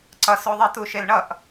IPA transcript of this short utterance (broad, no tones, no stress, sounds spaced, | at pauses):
ǀ ʌ s o ðˤ i t u ʃ e l ɳ ʌ ʔ